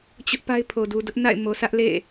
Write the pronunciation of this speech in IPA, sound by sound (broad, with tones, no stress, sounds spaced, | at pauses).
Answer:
t͡ɕ ʊ˦ ʔ p a˦ ɪ̯ pʰ o˨ d u˨ d ʊ˦ ʔ n a̰˦˨ ɪ̯ m o˨ s ä˦ ʔ l ḛ˦˨